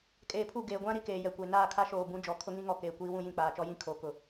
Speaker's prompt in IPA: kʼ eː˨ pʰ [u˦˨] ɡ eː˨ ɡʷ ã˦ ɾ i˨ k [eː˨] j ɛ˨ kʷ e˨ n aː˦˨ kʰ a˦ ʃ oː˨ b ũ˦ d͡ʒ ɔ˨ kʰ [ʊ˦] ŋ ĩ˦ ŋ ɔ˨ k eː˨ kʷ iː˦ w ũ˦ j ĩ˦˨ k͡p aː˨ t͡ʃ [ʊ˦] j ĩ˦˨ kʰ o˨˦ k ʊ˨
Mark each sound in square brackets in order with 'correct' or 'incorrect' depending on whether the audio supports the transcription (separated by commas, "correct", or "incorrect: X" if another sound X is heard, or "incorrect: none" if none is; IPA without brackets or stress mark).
correct, correct, correct, incorrect: ɔ˦